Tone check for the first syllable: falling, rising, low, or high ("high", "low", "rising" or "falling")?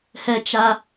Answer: high